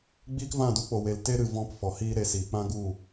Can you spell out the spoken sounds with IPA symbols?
ɡ͡b iː˦ k v ã˦˨ d u˦ k͡p o˨ w e˨ l t e˦ ɾ ɨ˨ v ɔ̃˧ p f ɔ˨ h iː˦ ɾ e˧ s iː˨ k͡p ã˦ ɡ u˦˨

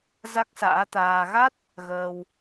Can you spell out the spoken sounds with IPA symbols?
z a˦˥ k̚ s a̰ː˧˥ t̪ aː˧ ɣ a˦˥ t̚ | ɣ əː˧ w

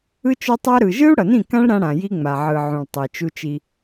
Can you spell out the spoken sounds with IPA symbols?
ɯ˦ t͡ʃ o˦ tˤ a˦ ɾ ɯ˨ ʒ ɯ˦ u̯ ɽ ʌ˨ n ĩ˦˨ k ã˦ ɭ ɾ ã˦ ɽ ã˨ j i˦ ŋ͡m a˨ ʕ ɯ˨ ʕ ũ˨ ɭ tˤ i˨ t͡ʃ u˦ t͡ʃ i˦

